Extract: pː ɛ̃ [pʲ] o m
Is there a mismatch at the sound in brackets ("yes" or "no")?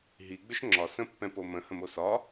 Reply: yes